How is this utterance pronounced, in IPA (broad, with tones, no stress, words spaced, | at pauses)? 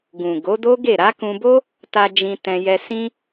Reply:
ɡũ˨ ɡo˨˦do˦ɡe˦˨ ɾa˨˦kũ˧bo˦ | ta˧d͡ʒĩ˧ tɛ̃˧jɛ˧ sĩ˧